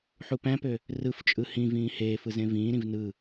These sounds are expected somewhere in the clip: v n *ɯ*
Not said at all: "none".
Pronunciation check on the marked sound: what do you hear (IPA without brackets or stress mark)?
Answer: ɯ